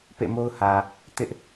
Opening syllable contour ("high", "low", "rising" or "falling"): falling